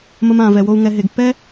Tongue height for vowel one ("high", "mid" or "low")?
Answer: mid